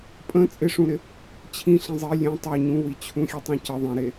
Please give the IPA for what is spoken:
pʼə̃ t͡sʼɪʂũɾɪ | t͡ɕʰĩɬĩ zˤi lʲẽ tˤu ɲũwit͡ɕʰũxʲe tˤĩcə ðˤĩɾe

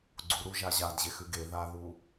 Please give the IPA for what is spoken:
ɡ͡ǀuɾuʒa ʑadʑexʉɡ e ðaðu

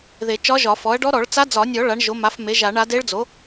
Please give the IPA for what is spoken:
ðe˨˩˦t͡ʃɒ˧˥ʒɒ˨˩˦ fɔ˩˥ɐ̯ɖɔ˧˥ ɾɔ˨˩˦ɭt͡sa˧˥d͡zɒ˨˩˦nʲɔ˨˩˦ ɭa˩˥ɳʒo˩˥ma˩˥f me˩˥ʒa˨˩˦ɳ a˩˥de˧˥ɭd͡zo˩˥

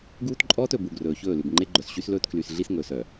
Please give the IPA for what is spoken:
ɡuː˦tǃʼɔː˦t ɵ˨bu˨ɡrɵː˨çɵː˦˨ lʉ˨bŋ͡ǃe˦ɡ͡ǃœ˨s ɕy˦slɵː˦tkly˨sɮi˦s ŋɵː˨sœ˨

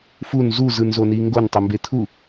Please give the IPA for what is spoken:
fun zuzɯnzoni ŋɡontˤɤmbe t̪ʰu

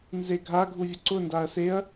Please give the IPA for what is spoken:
nzeɡʱa ɡʱuvʲʊǀʊ ndaɐ̯seɐ̯

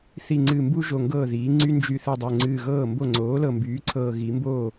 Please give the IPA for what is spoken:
θi˧˩ŋ͡ǀɨ˧˩mbu˥ ʒo˧˩ŋɡɤː˥˩ðiː˩˥ŋ͡ǀy˥ nd͡ʒy˧˩θɯ˧˩dˤo˧˩ ŋ͡ǀɨː˧˩ɣɤː˥˩mbo˥˩ ŋ͡ǀoː˩˥lɤ˧˩ mbyː˩˥ǀʰɤː˧˩ ɣi˩˥ mboː˥˩

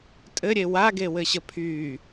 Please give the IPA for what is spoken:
tʼɘɾʲe waɡewɘɕə pʰy

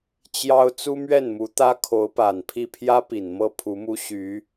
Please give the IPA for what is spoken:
t͡ɕjɑ˥ʊ̯ t͡su˥mɥɛ˥˩nmu˧˥t̪ä˥ kʰo˧˥ʊ̯pa˨˩npʰi˥˩ pʰjä˥ pi˨˩nmɤ˥˩ pʰu˧˥mu˥ ɕy˧˥

